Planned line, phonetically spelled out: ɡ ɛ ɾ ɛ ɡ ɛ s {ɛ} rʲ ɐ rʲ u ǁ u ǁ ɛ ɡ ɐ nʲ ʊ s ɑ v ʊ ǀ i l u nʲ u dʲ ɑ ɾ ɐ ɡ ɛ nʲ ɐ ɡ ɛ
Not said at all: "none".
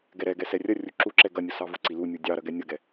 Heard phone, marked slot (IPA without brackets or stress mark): ɛ